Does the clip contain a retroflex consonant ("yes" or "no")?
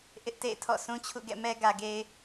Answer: no